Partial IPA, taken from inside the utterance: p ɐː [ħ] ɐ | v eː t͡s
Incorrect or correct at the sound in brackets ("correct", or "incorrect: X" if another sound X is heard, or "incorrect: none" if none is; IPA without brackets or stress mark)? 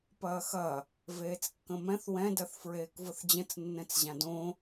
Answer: incorrect: x